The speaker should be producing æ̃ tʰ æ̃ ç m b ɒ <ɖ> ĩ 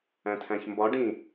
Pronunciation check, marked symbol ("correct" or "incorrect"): correct